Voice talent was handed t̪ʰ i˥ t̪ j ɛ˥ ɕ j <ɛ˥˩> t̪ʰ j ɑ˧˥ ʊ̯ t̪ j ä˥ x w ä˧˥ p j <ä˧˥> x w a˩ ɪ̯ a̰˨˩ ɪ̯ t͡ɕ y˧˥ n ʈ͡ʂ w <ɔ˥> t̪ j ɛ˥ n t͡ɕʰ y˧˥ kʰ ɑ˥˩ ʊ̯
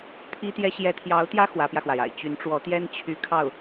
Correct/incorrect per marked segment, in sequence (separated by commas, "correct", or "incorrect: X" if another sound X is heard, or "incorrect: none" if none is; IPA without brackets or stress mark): incorrect: ɛ˧˥, incorrect: ä˧, incorrect: ɔ˧˥